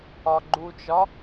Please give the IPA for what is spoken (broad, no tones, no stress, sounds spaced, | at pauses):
ɒ ɡ͡ǃ u t͡ʃ ɒ